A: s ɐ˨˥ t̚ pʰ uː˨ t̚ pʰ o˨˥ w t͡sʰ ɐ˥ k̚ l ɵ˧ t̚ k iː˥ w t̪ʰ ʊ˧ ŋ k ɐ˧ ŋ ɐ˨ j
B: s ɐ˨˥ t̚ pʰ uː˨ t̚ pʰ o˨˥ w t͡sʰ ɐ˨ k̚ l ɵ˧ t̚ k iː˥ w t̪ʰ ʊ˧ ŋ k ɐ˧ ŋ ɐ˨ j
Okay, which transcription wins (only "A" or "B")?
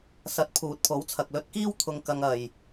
B